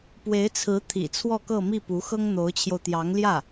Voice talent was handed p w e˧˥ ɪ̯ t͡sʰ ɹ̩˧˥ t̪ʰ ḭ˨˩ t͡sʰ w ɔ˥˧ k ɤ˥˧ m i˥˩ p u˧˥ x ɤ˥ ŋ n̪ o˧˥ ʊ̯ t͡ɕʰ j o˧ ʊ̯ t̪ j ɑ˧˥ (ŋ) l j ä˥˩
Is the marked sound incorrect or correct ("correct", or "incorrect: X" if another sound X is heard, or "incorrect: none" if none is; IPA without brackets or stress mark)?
correct